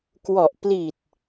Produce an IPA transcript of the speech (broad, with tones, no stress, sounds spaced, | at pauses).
k w ɔ˨˩ ʔ p l i˨˩ t̚